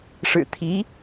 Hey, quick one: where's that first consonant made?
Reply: retroflex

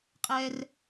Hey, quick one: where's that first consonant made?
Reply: uvula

